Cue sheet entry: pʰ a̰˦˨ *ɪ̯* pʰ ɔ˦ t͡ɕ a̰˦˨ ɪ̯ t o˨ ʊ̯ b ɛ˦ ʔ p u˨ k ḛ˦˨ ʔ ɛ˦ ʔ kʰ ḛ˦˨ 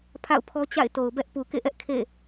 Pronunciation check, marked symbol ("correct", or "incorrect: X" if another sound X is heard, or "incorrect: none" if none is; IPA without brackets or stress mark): incorrect: ʊ̯